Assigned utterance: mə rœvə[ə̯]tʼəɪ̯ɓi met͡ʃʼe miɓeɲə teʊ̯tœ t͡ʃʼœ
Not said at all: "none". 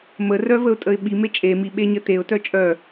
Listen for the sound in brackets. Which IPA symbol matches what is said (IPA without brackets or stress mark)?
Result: ʊ̯